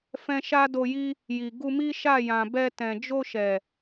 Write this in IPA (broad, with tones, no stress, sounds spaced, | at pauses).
f ɛ̃˧ ʃ a˦ d o˧ j i˦ | j i˨ ɡ u˧ m i˦ ʃ a˦˨ j ã˨ b ɛ˧ t ɛ̃˨ d͡ʒ o˧ ʃ ɛ˨